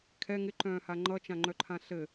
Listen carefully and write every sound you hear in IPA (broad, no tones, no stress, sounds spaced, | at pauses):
kʰ ɛ ŋ ɪ ǃ œ̃ː h a ŋ͡ǃ ʌ t͡ʃ ã ŋ͡ǃ œ ǃʰ ã ɬ ɘ